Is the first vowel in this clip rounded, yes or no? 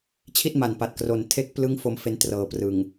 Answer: no